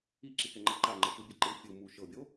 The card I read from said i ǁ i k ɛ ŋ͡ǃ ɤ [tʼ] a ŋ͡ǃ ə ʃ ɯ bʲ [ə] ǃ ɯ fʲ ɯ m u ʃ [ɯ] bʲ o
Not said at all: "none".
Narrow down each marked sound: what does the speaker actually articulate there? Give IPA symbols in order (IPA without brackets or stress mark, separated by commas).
ǃ, ɛ, ɤ